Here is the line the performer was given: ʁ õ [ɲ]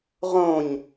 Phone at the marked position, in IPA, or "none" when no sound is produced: ɲ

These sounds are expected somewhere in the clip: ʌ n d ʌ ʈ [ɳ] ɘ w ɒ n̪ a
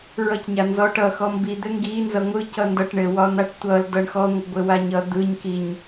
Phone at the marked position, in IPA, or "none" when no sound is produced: ɳ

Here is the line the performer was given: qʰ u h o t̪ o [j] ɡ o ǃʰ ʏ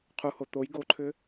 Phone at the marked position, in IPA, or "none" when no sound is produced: j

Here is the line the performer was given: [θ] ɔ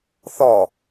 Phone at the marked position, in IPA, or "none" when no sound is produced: θ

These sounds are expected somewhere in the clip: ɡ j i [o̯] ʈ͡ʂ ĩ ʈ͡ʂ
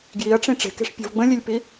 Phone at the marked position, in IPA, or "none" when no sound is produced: ɐ̯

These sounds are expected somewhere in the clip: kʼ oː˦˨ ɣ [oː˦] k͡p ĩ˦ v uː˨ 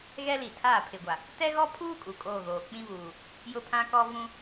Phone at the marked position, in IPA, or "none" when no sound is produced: oː˨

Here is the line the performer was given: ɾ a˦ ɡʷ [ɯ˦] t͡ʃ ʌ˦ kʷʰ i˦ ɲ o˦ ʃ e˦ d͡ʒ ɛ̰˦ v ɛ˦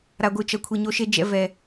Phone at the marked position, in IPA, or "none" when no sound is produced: ɯ˦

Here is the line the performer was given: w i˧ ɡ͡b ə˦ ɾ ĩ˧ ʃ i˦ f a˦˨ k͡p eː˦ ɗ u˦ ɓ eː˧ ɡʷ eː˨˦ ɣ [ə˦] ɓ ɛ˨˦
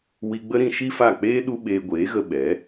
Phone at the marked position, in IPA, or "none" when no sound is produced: ə˧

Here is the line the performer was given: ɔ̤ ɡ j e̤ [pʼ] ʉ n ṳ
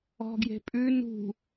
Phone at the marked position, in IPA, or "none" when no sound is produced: pʼ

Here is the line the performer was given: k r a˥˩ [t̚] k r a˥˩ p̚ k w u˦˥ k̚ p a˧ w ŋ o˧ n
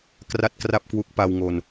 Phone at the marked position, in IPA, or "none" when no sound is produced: t̚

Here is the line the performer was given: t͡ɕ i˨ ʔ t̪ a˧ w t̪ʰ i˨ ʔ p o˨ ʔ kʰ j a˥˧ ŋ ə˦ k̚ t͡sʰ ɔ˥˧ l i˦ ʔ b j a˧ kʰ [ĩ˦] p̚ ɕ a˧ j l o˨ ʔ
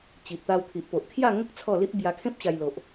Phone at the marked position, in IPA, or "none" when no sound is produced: ẽ˦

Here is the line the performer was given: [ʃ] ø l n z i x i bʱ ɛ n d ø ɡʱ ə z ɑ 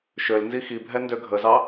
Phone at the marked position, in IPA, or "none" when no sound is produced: ʃ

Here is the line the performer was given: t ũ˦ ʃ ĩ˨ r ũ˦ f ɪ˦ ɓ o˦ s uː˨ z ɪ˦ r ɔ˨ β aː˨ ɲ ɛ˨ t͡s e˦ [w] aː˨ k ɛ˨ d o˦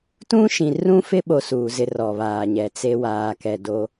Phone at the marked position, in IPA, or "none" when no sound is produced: w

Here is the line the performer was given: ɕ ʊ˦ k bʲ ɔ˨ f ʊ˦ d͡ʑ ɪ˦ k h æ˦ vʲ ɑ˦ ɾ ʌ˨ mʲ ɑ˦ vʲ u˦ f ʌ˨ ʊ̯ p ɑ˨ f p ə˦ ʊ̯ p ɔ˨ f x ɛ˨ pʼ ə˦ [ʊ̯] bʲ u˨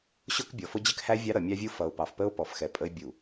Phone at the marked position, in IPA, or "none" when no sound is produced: ɪ̯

